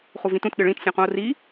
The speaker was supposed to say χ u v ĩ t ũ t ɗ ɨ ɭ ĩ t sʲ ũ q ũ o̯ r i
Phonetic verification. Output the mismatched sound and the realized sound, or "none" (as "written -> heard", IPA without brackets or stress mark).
none